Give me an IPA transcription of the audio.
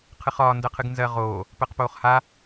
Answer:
qʰ ɨ χ ɒː n d ɜ qʰ ɨ ɡ n z ɜ ʁ oː | p ɜ q p oː χ h a

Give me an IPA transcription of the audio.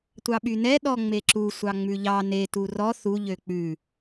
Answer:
tʷ ɑ ɓ y n ɛ ɗ ɔ ŋ͡m e ǁ u sʷ ɑ ŋ͡m ʉ ʎ ɑ n e t u r ɔ θ u ʎ ø k͡p ʉ

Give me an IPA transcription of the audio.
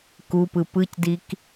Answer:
k u p ɯ p ɯ c d i k

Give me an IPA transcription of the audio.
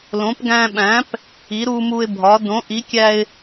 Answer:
l õ˩˥ p ɡ æ̃˧ ɓ æ̃˩˥ p | i˩˥ ɾ u˧ m u˧ ɪ̯ bʱ ɒ˩˥ d õ˩˥ ʔ i˩˥ kʲ æ˧ ɪ̯

